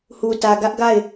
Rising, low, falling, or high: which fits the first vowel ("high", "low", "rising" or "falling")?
low